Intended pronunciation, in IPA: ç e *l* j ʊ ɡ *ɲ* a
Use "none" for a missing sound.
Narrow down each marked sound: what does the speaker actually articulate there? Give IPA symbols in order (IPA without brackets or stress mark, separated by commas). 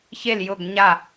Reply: l, ɲ